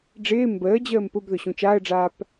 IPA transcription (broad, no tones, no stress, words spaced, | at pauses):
ɖ͡ʐɪː mbəːd͡ʑəːm pʊb ðʊɕũt͡ʃaːə̯ɖ͡ʐaːp